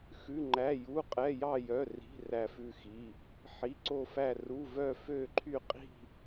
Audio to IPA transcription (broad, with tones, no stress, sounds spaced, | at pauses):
x ʉ˧˥˧ ŋ͡ǃ æ˧˥˧ j u˧˥˧ qʼ ɛ˧˥˧ j ɑ˥˧ j œ˧˥˧ r i̤˧˥˧ r æ˥˧ f ʉ˥˧ x i˧˥˧ | ħ i˧˥˧ ǀ o˥˧ f æ˥˧ r u˧˥˧ v œ˥˧ f ø˥˧ ǃʰ y˥˧ qʼ i̤˥˧